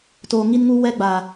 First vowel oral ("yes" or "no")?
yes